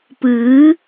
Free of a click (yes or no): yes